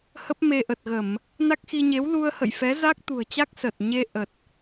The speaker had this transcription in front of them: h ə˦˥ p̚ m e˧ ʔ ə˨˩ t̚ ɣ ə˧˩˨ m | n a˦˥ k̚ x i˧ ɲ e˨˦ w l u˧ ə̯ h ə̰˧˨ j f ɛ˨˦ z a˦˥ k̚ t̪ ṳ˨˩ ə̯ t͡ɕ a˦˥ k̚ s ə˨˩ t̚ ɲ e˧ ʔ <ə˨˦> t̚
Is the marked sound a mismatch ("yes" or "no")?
yes